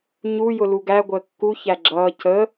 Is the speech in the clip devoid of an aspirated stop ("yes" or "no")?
yes